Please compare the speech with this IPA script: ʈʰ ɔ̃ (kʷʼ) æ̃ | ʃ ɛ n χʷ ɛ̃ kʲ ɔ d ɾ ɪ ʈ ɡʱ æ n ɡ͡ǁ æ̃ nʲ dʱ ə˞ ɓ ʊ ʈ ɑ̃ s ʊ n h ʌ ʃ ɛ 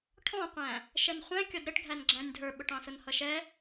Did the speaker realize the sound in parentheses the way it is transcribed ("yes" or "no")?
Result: no